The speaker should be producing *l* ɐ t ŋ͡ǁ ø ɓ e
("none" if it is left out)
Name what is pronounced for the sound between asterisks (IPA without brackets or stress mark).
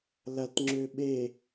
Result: l